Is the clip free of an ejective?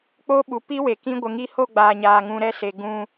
yes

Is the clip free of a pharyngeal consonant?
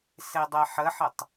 no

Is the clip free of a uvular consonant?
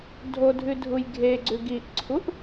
yes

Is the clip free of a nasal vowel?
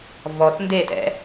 yes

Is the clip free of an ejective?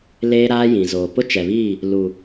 yes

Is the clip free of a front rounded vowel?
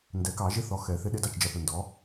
yes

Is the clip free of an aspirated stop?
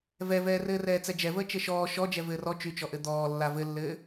yes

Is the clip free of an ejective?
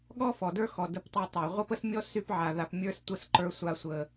yes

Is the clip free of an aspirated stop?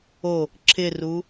no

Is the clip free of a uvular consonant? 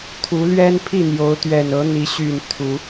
yes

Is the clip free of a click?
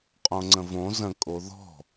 no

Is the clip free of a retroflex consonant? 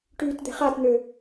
no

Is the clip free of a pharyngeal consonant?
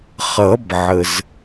no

